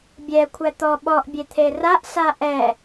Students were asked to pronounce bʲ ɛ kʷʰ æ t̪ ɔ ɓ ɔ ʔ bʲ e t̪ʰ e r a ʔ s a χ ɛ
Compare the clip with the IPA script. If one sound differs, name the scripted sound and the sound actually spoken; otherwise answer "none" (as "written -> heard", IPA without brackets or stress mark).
χ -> ʔ